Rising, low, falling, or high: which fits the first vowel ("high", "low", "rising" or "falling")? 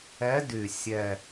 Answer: rising